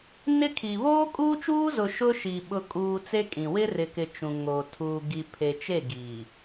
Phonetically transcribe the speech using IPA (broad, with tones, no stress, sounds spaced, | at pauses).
n ɪ˦ kʰ i˨ β oː˦ kʼ uː˦ t͡ʃ uː˦ z ʊ˨ ʃ ʊ˦ ʃ i˨ ɓ ʊ˨ kʼ uː˨ t͡s e˦ kʼ ĩ˨ w ɪ˦ r ɪ˨ k ɪ˨ t͡ʃ ũ˨ ŋ oː˨ tʰ uː˨ ɡ i˨ pʰ e˨ t͡ʃ e˦˨ ɡ iː˨